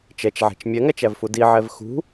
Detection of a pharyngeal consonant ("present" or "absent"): present